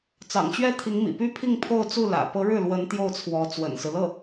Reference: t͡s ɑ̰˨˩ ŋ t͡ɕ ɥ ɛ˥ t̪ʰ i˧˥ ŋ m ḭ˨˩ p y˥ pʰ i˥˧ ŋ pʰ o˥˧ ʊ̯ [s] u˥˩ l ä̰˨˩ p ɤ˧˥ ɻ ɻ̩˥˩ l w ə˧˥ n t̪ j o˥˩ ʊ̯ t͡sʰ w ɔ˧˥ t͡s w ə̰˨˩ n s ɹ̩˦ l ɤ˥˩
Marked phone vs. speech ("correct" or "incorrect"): incorrect